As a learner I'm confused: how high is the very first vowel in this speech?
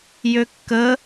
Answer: mid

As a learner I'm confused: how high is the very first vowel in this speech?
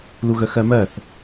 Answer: high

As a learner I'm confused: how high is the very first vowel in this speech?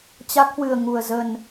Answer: low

